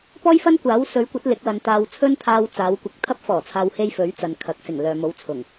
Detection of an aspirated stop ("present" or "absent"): present